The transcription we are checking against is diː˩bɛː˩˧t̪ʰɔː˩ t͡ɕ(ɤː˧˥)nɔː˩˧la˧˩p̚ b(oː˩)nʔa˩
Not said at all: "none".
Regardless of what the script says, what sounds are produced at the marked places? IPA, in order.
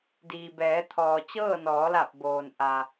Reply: ɤː˥˨, oː˩

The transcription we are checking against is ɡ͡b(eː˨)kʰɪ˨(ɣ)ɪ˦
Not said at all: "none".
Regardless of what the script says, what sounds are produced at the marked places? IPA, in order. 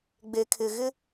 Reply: e˨, ɣ

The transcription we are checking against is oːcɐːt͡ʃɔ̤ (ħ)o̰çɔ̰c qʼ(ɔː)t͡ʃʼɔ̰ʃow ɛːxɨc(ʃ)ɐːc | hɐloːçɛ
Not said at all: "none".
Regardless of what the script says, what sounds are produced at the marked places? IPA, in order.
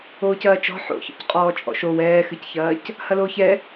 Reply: ħ, ɔː, ç

